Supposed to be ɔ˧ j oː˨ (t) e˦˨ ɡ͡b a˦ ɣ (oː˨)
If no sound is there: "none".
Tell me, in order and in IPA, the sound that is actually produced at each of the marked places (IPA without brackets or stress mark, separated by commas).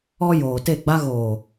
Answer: t, oː˨